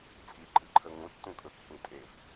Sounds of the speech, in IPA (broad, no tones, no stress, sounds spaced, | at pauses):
t͡sʼ i ǃʼ ɨ ǃʰ ə ŋ ũ tː ũ kʼ ɵ kː ĩ tʼ e v